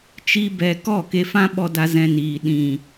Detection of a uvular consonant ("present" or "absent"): absent